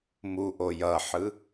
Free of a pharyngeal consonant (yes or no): no